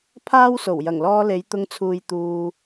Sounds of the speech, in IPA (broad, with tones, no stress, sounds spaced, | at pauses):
pʰ aː˥ w s o˨˩ w j ɐ˨˩ ŋ l ɔː˧ l e˨˧ j t̪ ʊ˧ ŋ t͡sʰ uː˨ j t̪ uː˨